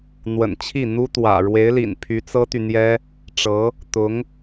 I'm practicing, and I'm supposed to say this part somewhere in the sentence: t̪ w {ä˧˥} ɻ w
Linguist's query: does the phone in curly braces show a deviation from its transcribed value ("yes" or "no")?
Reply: yes